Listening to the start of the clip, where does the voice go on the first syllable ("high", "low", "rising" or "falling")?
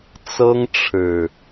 high